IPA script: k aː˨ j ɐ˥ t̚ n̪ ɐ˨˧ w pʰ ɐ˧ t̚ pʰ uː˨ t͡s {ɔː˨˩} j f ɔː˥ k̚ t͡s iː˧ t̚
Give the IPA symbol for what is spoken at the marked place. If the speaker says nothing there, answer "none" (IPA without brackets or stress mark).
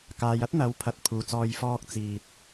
ɔː˧